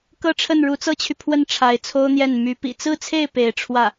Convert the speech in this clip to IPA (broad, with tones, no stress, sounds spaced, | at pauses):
k ɤ˥˧ ʈ͡ʂʰ ə˥˩ n ɻ u˧˥ t͡s ɤ˥ t͡ɕʰ y˨ pʰ w ə˥˩ n ʈ͡ʂʰ a˧˥ ɪ̯ t͡sʰ o˥ ʊ̯ n̪ j ɛ˥˩ n m y˧˥ p ḭ˨˩ t͡s ɹ̩˥˧ t͡sʰ e˥˩ ɪ̯ p e˧˥ ɪ̯ ʈ͡ʂʰ w ä˥˩